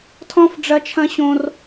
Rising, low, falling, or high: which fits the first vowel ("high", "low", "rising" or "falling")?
high